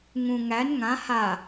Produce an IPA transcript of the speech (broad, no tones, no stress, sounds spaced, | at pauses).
ŋ ũ ŋ æ n ŋ ã h a